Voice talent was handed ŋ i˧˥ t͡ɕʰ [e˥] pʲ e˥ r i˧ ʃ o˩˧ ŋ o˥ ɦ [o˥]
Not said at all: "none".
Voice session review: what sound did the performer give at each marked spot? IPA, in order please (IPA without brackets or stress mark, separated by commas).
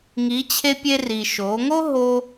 e˥, o˥